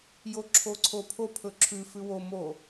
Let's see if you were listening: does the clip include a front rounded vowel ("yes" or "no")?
no